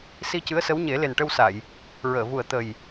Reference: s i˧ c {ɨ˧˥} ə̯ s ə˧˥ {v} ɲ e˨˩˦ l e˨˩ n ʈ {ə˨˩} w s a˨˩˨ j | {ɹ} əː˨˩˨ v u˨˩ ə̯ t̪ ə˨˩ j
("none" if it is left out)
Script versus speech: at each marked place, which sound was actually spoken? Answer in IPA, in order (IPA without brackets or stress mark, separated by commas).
ɨ˧˥, w, ə˧, ɹ